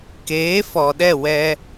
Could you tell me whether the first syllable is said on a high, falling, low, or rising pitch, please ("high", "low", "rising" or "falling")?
rising